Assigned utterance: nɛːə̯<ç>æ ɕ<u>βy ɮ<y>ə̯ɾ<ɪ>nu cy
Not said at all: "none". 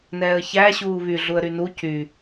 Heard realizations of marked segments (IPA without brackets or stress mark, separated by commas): ç, uː, u, y